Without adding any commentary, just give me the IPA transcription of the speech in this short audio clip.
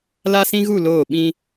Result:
l a˦ s ĩ˦ ɣ u˦˨ l oː˦˨ ɓ ĩ˦

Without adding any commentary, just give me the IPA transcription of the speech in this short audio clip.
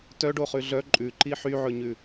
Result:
t œ ɖ o χ ʉ ɮ œ ǃʼ ʉ ǃ i ħ y ʕ ɵ ɲ ʉ

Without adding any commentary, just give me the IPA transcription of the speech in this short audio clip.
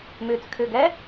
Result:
m ʉ t͡s kʰ ʉ ɡ ɛ

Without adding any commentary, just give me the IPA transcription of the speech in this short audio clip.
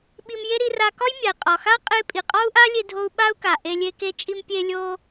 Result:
ɓ i˧ m j e˥ ɾ i˧ r a˧ k ɒ˥ j mʲ a˩ i̯ qʼ ɒ˩ x a˥ qʼ e˧ pʼ i˩ qʼ ɒ˥ u̯ ʔ a˥ lʲ e˧ dʱ o˧ u̯ ɓ a˥ u̯ k a˩ ʔ e˧ lʲ e˧ k e˧ t͡ʃʼ i˧ m pʲ e˧ lʲ o˧

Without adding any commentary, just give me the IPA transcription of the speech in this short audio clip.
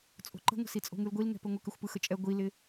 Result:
t͡sʼ o̤ ǃ ə̤ ŋʷ ə̤ s i t͡sʼ o̤ ŋ ɯ l ɡʷ i l ŋ ɛ̤ p ɘ ŋʷ ə k ɘ xʷ p ɯ x ə t͡ʃʼ ɛ ɡʷ i l ɪ

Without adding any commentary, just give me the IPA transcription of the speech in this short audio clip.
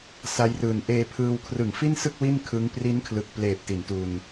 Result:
s a˦˥ j r ɯː˨˩ n ʔ eː˧ pʰ ɯː˧ w kʰ r ɯ˨˩ ŋ f i˥˩ n s ɯ˥˩ k̚ w i˥˩ n kʰ ɯ˦˥ ŋ p r i˦˥ n kʰ l ɯ˨˩ k̚ p l eː˨˩ p̚ t i˩˦ n t u˧ n

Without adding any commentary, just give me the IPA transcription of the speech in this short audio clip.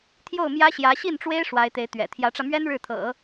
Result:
t̪ʰ j o˥˩ ʊ̯ m j ä˥ ɕ j ä˧˥ ɕ i˥˩ n ʈ͡ʂ w e˥ ɪ̯ ʂ w a˧˥ ɪ̯ t̪ e˧˥ ɪ̯ t̪ ɥ ɛ̰˨˩ t̪ʰ j ä˧˥ ʈ͡ʂ ä˧ m ɥ ɛ˥ n ɻ ɻ̩˥˩ t̪ʰ ɤ̰˨˩˦

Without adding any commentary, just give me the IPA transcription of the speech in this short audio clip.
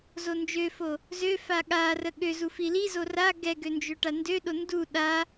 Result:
z o n d͡ʒ ø f o | z ø f a ɠ a r ə ɠ ø z u f i l i z o r a ɡ ɛ ɡ ø n d͡ʒ ø ʈ a n d ø ɗ o n d u ɗ a

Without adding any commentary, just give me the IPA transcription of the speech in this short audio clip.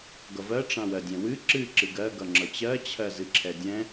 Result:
ɡ ʌ v ɜ ʈ͡ʂ ã w ɜ dʲ ɛ̃ w ɨ ǁ ɨ ǁ ɨ ɡ ɜ ɡ ʌ ŋ͡ǁ ʌ t͡ɕ ɜ t͡ɕʰ ɜ z ɨ ǁʰ ɛ dʲ ɛ̃

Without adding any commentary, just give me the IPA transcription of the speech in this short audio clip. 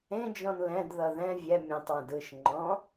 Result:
ẽ d͡ʒ ɔ̃ n l ɛ̃ d ð ʌ ð ɛ̃ vʲ ɛ mʲ ɛ̃ tˤ w ə̃ d ɯ ʃ ŋ͡ǃ ɔ̃

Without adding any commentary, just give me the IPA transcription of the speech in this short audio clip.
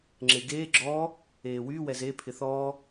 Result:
ŋ͡ǁ e ɡ eː ɡ͡ǁ ɔː | eː w yː w ɛ z e pʰ ɪ θ ɔː

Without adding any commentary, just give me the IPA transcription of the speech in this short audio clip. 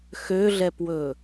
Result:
x ø ɮ ɛ p w ɵ

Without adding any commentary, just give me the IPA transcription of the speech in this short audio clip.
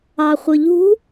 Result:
ɑ χʷ ɯ ʎ ṳ

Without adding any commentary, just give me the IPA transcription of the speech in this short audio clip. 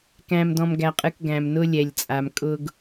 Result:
k æ̃˨ m d ɔ̃˨ m ɡ æ˨ qʼ ɨ˨ k ɡ æ̃˨ m n ʊ˦ lʲ ɛ˨ lʲ t͡sʼ a˨ m kʼ ʊ˦ ɡ

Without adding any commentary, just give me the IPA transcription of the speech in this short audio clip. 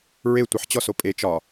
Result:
ɹ e tʷ ɪ ħ t͡ɕ ɔ s o pʼ e t͡ʃ ɒ

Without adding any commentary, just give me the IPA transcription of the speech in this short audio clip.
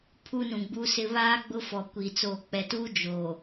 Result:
pʰ u˦ n ũ˨ ɡ͡b u˦ s ɪ˦ β aː˦ ɡ͡b ʊ˦ f ɔ˨ kʷ iː˨ t͡s oː˨ k͡p ɛ˨ t uː˦ d͡ʒ oː˨

